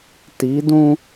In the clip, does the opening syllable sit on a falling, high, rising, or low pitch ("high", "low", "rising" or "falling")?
rising